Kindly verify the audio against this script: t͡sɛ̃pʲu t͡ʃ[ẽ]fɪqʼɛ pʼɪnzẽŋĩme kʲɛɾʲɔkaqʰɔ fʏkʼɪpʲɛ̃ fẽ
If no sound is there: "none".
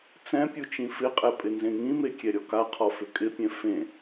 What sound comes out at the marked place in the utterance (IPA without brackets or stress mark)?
ĩ